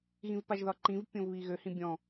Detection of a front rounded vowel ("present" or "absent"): present